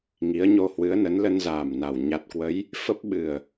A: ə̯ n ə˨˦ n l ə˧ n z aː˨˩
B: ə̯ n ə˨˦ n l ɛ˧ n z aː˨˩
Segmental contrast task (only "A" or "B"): A